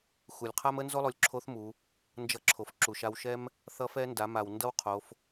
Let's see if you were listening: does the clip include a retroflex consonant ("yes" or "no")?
no